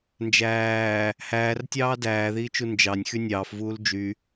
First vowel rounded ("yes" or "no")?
no